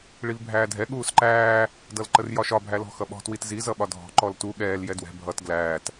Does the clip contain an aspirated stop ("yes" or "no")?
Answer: no